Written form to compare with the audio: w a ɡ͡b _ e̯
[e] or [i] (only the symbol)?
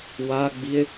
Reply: i